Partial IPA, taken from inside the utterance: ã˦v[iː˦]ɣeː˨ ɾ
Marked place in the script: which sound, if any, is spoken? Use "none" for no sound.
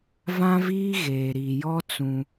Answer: iː˦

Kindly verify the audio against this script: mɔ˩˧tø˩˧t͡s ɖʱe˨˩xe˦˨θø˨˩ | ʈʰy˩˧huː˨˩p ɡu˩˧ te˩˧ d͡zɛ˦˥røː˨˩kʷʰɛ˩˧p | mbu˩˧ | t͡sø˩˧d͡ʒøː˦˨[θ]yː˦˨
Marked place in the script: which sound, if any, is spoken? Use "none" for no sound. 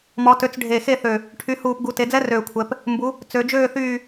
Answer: θ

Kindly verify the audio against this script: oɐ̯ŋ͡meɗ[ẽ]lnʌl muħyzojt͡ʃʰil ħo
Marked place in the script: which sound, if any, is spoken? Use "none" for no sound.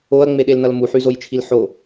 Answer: e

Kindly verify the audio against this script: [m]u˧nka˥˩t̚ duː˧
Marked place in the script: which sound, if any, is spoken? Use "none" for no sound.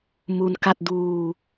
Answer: m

